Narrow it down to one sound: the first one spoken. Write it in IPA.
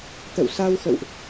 t̪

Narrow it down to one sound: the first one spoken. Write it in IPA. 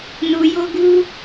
n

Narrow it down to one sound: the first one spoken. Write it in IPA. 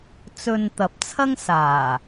t͡s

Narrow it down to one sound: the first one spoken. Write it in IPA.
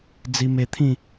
d͡z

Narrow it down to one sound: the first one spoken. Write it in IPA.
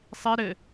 sˤ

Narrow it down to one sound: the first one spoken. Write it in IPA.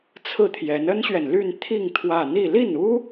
t͡sʰ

